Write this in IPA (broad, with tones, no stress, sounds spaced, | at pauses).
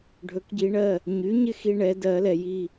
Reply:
ɖʱ ɵ˩˥ k ɟ i˨˩˦ ɳ ɜ˩˧˩ | ɲ y˩˥ ɲ ɪ˦ x i˦ ɳ ɛ˩˥ d ɜ˨˩˦ l ɛ˩ j i˥˩